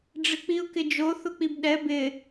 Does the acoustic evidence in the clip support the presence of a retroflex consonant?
yes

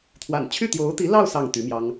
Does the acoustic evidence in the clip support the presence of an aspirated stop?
yes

